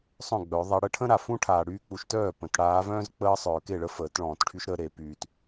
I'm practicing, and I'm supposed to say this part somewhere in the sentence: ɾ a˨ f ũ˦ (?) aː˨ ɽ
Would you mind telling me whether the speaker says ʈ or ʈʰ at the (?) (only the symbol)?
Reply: ʈʰ